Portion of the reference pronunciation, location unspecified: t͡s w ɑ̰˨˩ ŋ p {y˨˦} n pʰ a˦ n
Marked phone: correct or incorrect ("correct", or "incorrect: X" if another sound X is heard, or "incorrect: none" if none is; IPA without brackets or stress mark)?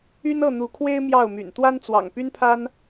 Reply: incorrect: y˦